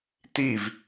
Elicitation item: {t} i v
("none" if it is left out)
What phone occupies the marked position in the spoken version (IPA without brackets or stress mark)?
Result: t